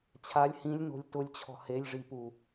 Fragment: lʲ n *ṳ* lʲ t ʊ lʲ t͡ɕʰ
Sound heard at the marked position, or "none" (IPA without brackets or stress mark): o̤